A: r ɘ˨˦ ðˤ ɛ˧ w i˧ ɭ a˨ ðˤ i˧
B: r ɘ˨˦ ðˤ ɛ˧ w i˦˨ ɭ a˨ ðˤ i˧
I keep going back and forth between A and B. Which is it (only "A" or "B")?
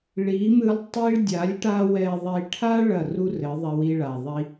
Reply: A